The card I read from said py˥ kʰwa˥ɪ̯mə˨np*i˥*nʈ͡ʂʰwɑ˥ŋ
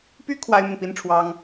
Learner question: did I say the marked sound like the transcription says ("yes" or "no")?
yes